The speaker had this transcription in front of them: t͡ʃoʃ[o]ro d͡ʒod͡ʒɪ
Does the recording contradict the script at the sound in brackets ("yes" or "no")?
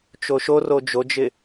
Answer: no